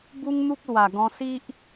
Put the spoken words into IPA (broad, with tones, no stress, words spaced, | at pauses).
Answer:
bu˦ŋn̪u˦k̚ lwa˨˩ ɡɔ̃˧ si˦ʔ